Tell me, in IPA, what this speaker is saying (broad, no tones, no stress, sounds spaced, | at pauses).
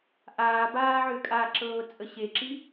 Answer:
ʔ aː b aː ʕ ʏː kʼ a ǁ ɤː t͡sʼ ə ɕ e ǁ i